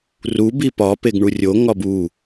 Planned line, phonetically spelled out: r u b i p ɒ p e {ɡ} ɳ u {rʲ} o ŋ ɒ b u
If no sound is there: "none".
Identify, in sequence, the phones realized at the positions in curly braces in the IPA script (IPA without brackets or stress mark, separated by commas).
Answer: ɡ, rʲ